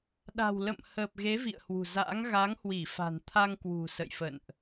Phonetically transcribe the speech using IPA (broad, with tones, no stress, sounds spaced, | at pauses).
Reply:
ɗ a̤˨˩ w l ə̰˧˨ m h əː˨˩ p̚ ɣ e˨˦ v ḭ˧˨ ə̯ h w ṳ˨˩ z a̰˧˥ ŋ ɣ a˨˦ ŋ h w i˧˩ f a̤˨˩ n t̪ʰ a˧ ŋ k w ṳ˨˩ s ə̰˧˨ j f ə̰˧˨ n ʔ